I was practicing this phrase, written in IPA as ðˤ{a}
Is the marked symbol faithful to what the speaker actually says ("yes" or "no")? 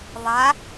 yes